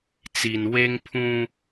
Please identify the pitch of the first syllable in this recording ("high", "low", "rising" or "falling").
low